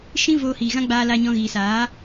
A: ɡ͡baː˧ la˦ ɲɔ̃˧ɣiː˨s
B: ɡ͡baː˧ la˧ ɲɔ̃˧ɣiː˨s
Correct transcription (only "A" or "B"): B